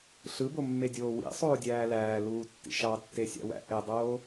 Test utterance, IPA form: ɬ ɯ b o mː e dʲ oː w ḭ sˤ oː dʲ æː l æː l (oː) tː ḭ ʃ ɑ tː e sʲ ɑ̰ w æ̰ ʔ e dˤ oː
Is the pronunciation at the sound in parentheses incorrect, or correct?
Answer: incorrect: uː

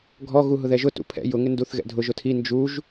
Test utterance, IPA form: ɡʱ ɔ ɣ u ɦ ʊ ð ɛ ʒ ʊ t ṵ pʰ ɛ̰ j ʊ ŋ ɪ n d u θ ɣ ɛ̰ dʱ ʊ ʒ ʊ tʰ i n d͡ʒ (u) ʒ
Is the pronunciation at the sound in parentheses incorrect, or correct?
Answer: correct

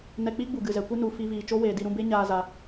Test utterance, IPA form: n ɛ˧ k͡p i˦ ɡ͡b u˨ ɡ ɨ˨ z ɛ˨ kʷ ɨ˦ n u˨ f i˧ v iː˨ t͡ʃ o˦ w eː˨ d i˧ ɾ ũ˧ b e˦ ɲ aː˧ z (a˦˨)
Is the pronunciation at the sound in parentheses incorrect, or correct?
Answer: incorrect: a˨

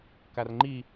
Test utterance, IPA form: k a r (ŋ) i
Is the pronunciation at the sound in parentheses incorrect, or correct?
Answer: incorrect: ŋ͡ǃ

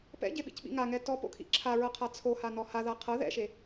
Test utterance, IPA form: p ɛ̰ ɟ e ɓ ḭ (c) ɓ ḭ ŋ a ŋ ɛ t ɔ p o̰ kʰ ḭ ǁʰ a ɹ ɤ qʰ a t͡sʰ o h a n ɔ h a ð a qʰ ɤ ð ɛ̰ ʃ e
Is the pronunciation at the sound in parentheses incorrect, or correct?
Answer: correct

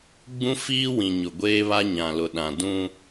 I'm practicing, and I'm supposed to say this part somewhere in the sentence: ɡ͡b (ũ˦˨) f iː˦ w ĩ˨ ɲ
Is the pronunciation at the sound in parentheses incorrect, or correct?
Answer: incorrect: ũ˦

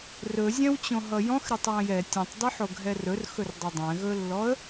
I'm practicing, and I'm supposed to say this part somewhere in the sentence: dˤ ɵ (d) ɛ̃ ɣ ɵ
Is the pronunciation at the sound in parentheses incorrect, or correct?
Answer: incorrect: dˤ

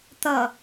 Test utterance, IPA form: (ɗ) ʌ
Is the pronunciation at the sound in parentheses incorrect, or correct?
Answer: incorrect: t̪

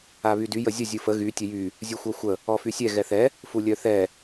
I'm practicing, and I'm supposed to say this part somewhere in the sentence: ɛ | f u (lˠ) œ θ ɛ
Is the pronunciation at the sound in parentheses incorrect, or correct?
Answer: incorrect: lʲ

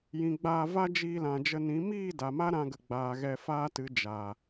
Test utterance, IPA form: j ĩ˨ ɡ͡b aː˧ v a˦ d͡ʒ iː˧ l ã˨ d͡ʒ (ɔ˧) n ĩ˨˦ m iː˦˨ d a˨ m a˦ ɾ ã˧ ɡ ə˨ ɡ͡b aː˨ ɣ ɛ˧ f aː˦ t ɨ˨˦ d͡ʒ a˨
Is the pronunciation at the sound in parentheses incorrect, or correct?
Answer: incorrect: ə˧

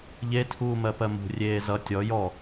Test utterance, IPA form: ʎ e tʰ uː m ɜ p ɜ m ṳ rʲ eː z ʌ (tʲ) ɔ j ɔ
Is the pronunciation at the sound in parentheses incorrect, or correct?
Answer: correct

